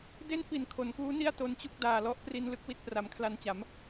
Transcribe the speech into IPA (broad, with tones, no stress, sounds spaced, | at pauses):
d e˥˩ n f i˨˩ n kʰ o˩˦ n k uː˦˥ n i˥˩ a̯ t o˧ n t͡ɕ u˥˩ k̚ d aː˨˩ l ɔ˦˥ ʔ p r i˧ n l ɯ˥˩ k̚ w i˥˩ t̚ p r a˩˦ m kʰ l a˧ n t͡ɕ a˩˦ m